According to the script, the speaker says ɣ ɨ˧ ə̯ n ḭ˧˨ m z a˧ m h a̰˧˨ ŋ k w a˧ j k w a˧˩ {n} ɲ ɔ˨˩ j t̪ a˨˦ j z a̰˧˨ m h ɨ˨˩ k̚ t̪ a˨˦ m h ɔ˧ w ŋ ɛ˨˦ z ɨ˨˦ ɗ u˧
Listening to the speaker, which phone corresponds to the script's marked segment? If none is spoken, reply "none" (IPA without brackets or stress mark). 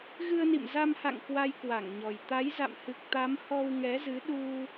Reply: ŋ